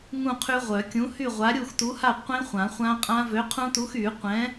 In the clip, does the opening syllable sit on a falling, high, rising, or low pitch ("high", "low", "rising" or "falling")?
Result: falling